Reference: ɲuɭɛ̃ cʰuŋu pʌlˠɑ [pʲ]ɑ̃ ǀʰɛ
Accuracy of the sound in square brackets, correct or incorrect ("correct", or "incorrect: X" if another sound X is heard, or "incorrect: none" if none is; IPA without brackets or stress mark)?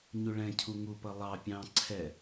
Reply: correct